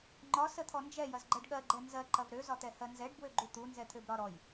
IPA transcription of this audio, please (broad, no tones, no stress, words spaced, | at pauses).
ŋ͡ǃɒ sət̪ʰɔnd͡ʒɛ jɐzɡ͡ǃɜɖɠɜɡ͡ǃɛ nzɜǃɐv ɾøzɒt̪ɛ hɜnzɛɖbwøɡ͡ǃu t̪u nzɛt̪ʰøbɾɒɾɔj